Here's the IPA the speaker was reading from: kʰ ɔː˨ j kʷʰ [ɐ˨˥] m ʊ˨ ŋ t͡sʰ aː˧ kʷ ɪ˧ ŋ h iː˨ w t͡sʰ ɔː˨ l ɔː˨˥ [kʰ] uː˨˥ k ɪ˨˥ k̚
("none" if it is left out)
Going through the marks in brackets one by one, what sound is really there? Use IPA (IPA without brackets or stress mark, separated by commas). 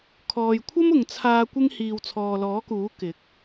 ɐ˥, k